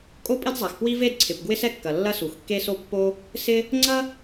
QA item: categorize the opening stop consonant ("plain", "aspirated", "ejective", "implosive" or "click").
ejective